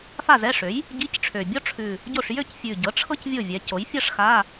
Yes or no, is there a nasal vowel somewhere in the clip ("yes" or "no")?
no